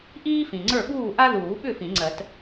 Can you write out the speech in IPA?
ʔ iː˥ f ĩ˨ ŋ͡ǀ ə˞˥˨ ɓ uː˥˨ ʔ a˥ ð uː˨˩˦ ɓ ʏ˥˨ f ĩ˨˩˦ ŋ͡ǀ ɜ˨˩˦ t

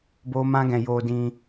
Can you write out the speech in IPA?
b o˦ m ã˦ ɡ ɛ̃˧ j o˧ d ĩ˧

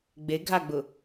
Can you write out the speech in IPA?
ɡ͡b e ɡʱ a ɡ͡b ʊ

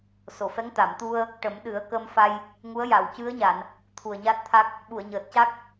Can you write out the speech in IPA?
s o˨˩˨ f ɛ˧˥ ŋ t̪ a˨˩˨ m t̪ u˧ ə̯ | ʈ ə˨˩˦ m ɗ ɨ˨˩˦ ə̯ k ə˧ m f a˧ j | ŋ u˧˥ ə̯ j a˨˩˨ w c ɨ˧˥ ə̯ ɲ a˨˩˨ n | t̪ʰ u˨˩ ə̯ ɲ a˦˥ t̚ t̪ʰ a˦˥ k̚ | ɓ u˨˩˨ ə̯ ɲ əː˨˩ t̚ c a˦˥ k̚

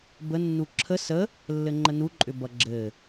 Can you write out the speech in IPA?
b ə nː u ǁʰ ə s ə | lː ɘ ŋ͡ǃ ə n u ǃʼ ʏ b ʌ ɡ͡ǁ ɘ

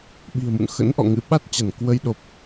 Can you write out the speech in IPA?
ɓ i̤˨˩ ə̯ m ṵ˧˨ n x ə̰˧˥ n ʔ ɔ̰˧˨ ŋ ɨ̰˧˥ ɓ a˦˥ t̚ t͡ɕ a˧˩ n k w ə˧ j ɗ o˨˩ p̚

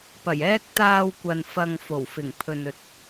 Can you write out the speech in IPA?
p ɐ˨˩ j ɛː˥ k̚ t̪ aː˧ w kʷ ɐ˨ n f ɐ˨ ŋ f o˨˩ w f ɪ˨˩ ŋ pʰ ɵ˨ n ɵ˨ t̚

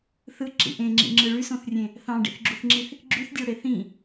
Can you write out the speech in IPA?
θ ɯ ǁ ḭ ʔ ẽ ŋ͡ǁ ḭ ŋ͡ǁ ɯ ɭ y s õ θ rʲ ẽ | θ ɑ̃ ɖ ḭ θ ɡ͡ǁ u θ ŋ͡ǁ i θ | ɡ͡ǁ y θ dʲ ɑ ɽ e θ ĩ

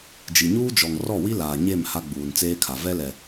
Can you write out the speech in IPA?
d͡ʒ i˨ ɲ uː˦ d͡ʒ ɔ˨ ŋ r ɔ˦˨ w i˦ l aː˨ ɲ e˦˨ m h a˦ ɡ͡b uː˨ n t͡s eː˦ kʰ a˨ v ɛ˦ l ɛ˨

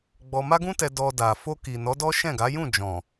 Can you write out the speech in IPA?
ɡ͡b ɔ˧ m a˦ ɡ ũ˦ t ɛ˧ d ɔ˧ d a˨ f o˧ k i˨ n ɔ˨˦ d ɔ˦ ʃ ɛ̃˦˨ ɡ a˨˦ j ũ˦˨ d͡ʒ ɔ̃˨

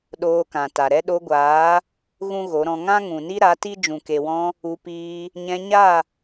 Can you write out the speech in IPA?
ɗ oː˧ k ã˨ t a˨ ɾ ɛ˦ ɗ o˧ ɡʷ aː˨˦ | ɣ ũ˦ ɣ o˨˦ ɾ ɔ̃˧ ŋ ã˦ ŋ ũ˨ n i˦ ɾ a˨˦ t i˦ d͡ʒ ũ˨ k e˨ w ɔ̃˧ | u˧ p iː˧ | ɲ ɛ̃˧ ɲ a˦˨

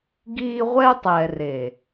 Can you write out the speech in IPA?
ɡ iː˦ ʁʷ ɛ˦ tˤ ɛ˨ r e˨

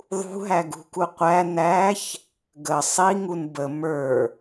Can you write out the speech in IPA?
ðˤ ṳ ɦ æ ɡ ṳ k u qʷ æ n æ ç | ɡ ə sˤ i ŋ u n b ə m ə˞

